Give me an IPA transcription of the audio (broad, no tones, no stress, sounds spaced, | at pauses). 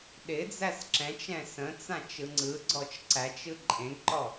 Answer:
ɗ ɪ d͡z æ s ǁ ɛ̃ t͡ʃ ɛ̃ s ə̃ t͡s ã t͡ʃ ɯ ŋ͡ǀ ɯ ɡ͡ǀ ɔ t͡ʃ ǀ æ t͡ʃ ɯ ǃʼ ẽ ɡ ǃ ɔ